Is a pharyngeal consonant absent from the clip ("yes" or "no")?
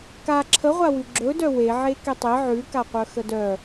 no